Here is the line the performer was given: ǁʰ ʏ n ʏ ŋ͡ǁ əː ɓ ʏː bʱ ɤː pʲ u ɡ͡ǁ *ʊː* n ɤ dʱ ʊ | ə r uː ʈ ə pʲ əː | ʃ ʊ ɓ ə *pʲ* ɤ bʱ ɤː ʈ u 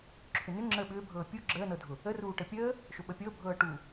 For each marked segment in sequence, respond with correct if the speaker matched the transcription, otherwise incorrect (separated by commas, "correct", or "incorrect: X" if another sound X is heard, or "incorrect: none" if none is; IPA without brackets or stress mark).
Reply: incorrect: əː, correct